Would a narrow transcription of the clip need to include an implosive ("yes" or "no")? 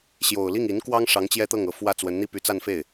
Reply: no